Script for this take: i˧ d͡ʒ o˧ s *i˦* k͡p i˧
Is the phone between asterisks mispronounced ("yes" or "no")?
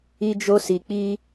yes